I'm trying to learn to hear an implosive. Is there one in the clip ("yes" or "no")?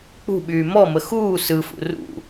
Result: yes